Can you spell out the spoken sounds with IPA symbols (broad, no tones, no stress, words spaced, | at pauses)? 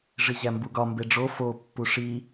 ʐiʑæmbuɡɒ mbeɖ͡ʐo fo pːuʂi